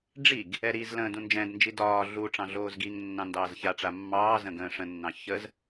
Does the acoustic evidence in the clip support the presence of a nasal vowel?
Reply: yes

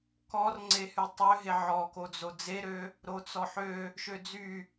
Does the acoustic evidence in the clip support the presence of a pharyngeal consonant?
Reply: yes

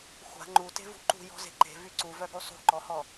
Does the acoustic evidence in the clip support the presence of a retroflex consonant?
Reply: no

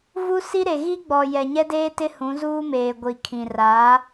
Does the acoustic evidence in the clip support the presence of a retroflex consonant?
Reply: no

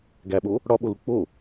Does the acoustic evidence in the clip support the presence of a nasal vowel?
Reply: no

